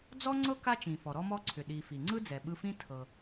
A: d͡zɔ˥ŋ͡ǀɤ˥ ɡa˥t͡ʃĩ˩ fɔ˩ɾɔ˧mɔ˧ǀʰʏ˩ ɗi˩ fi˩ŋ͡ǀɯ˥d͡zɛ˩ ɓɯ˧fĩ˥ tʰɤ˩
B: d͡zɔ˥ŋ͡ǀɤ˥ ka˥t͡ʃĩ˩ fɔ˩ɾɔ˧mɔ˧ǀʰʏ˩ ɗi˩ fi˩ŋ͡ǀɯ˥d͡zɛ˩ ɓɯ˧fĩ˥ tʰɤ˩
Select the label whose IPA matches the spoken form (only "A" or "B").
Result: B